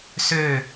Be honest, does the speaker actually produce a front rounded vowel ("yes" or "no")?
yes